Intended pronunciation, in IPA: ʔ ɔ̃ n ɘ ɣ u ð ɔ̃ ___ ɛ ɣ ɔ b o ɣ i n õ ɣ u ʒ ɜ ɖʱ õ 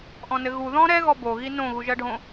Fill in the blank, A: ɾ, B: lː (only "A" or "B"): A